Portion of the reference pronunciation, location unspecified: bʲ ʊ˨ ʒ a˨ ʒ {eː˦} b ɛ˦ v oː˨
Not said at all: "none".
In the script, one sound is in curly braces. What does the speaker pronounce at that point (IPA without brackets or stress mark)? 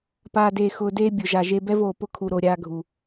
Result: e˦